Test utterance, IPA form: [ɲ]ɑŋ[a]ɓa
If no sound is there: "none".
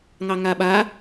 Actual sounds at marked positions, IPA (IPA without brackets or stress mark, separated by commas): ŋ, a